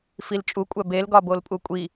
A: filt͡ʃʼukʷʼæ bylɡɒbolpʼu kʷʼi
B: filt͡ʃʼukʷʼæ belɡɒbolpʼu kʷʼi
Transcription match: B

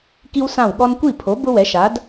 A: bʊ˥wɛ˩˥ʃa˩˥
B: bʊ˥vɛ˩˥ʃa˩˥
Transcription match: A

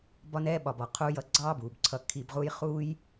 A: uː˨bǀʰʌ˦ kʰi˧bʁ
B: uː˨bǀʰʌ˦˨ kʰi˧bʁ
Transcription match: B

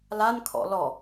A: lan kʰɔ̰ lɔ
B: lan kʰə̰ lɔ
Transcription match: A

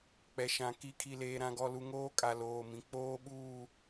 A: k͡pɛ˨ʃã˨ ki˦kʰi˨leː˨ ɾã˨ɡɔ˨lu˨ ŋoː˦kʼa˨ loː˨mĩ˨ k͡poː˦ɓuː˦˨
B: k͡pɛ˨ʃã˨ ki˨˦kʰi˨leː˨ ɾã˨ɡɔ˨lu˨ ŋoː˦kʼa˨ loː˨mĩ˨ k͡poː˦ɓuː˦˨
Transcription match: B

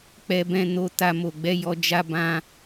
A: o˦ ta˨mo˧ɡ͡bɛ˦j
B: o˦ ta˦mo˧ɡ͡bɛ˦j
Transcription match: B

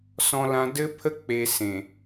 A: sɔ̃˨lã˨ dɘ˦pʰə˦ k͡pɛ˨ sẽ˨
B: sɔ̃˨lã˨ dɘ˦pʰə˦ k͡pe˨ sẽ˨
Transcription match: B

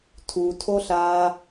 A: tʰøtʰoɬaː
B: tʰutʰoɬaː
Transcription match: B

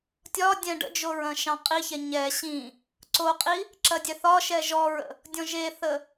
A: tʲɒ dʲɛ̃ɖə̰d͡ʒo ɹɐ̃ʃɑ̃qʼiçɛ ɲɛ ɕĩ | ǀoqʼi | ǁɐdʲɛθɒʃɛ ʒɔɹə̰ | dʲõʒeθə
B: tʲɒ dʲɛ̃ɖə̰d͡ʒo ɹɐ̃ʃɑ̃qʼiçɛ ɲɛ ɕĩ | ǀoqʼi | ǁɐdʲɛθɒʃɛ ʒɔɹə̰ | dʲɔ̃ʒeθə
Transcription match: B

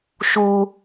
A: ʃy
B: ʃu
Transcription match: B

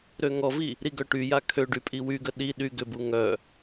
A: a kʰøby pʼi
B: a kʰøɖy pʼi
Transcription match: B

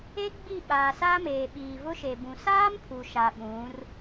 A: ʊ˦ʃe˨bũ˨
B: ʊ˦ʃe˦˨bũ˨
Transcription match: A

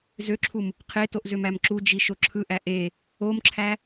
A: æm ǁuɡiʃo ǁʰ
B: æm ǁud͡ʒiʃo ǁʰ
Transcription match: B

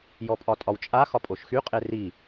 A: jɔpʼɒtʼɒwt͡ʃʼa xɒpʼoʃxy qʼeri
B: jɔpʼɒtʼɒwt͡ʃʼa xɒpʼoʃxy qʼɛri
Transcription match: A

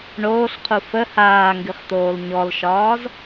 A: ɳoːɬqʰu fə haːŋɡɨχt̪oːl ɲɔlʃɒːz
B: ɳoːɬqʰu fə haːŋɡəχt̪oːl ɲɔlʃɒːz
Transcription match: A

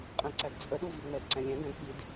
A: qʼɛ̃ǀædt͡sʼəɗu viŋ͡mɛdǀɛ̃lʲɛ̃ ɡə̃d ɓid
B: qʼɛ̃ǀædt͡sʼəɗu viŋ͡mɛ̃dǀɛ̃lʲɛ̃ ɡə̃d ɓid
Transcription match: A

